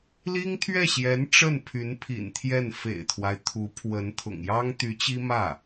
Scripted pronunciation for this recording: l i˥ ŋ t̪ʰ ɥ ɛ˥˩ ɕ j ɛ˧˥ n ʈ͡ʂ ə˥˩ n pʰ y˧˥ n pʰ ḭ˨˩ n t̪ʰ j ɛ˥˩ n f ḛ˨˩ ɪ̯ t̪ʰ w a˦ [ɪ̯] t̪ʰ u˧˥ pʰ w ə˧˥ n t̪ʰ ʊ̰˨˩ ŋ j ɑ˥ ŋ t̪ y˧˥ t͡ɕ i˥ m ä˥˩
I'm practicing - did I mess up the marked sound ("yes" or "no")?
no